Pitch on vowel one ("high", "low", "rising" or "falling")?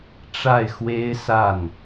falling